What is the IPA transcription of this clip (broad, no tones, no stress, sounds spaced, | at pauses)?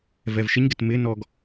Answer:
v ɛ v ʃ ɪ ɲ ɡ ɪ t m ɪ n ɔ ɡ